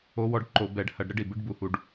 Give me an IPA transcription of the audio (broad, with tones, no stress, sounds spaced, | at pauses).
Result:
o˧˥ w ɔ˧˥ ɖ ǃ o˧˩˧ b ɛ˧˩˧ ɖ h ɐ˧˩˧ ɖ ɾ ɘ˧˥ ɖ i˩ b ɨ˧˥ ɖ b u˧˩˧ h u˧˩˧ ɖ